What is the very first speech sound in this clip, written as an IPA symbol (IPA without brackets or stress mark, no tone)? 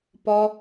p